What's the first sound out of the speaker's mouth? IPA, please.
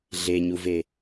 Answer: ɮ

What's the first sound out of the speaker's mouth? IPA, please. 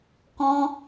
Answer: k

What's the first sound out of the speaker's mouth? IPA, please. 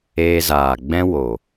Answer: eː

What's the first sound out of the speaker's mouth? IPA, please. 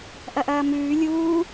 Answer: ʔ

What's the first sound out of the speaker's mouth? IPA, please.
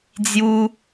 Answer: d͡z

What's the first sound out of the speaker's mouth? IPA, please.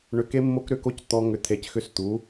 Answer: ɳ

